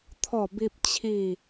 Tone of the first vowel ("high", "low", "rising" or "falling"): falling